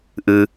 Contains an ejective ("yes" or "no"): no